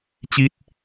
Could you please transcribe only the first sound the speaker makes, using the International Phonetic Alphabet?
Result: t͡ɕ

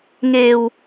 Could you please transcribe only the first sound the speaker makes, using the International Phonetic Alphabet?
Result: ŋ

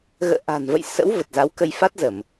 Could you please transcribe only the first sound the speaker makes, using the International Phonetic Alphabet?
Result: ɣ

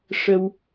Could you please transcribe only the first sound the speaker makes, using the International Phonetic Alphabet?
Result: ʂ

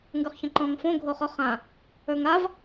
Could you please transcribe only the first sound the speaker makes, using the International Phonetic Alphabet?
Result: ŋ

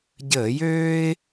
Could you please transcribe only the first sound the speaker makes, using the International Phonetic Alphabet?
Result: ɟ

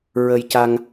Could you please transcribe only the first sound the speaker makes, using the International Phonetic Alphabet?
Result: ɹ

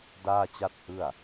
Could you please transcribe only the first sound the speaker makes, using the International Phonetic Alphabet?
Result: d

